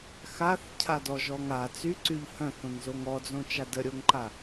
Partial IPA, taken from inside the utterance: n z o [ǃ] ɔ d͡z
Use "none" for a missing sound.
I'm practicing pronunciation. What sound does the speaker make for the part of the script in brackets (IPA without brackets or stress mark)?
ŋ